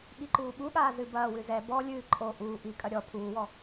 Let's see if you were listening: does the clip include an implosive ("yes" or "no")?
yes